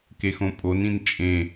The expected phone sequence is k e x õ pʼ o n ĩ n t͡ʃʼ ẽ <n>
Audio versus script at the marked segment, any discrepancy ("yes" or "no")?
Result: yes